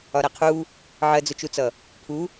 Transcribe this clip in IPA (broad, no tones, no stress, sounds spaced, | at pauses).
ɒ ɾ æ qʰ u | ʕ ɜ d͡z ʊ t͡ʃ u t͡s ʌ | pʰ u